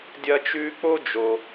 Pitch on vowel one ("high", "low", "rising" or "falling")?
high